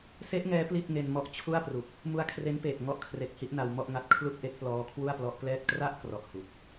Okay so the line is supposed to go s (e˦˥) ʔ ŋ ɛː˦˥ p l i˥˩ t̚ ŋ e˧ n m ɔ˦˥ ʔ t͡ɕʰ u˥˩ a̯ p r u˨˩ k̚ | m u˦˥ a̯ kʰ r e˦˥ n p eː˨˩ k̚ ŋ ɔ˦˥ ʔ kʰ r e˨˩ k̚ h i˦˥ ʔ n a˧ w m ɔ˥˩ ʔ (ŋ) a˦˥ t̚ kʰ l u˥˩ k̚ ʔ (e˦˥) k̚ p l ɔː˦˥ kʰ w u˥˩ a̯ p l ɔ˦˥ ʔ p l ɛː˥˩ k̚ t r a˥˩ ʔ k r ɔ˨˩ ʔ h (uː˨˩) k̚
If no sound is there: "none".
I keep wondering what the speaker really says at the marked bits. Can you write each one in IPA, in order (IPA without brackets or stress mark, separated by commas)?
e˦˥, ŋ, e˦˥, u˨˩